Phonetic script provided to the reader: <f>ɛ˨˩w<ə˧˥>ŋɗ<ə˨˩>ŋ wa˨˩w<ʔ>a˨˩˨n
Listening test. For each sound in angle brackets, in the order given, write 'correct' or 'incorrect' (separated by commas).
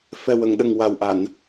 correct, incorrect, correct, correct